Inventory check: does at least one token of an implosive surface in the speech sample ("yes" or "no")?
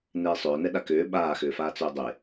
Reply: yes